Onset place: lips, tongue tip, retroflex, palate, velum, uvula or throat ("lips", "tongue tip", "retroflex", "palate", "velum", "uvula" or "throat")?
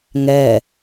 velum